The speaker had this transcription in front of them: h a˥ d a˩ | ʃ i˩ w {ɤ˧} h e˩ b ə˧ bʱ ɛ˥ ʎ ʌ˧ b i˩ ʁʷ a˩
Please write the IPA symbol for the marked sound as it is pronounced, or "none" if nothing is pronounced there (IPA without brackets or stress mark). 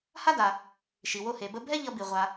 o˧